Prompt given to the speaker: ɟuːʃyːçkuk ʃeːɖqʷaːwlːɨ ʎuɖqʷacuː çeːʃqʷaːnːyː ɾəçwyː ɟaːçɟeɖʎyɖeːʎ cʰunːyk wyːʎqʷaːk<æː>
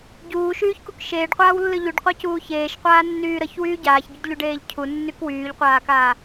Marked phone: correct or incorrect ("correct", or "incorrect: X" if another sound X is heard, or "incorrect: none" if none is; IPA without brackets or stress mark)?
incorrect: aː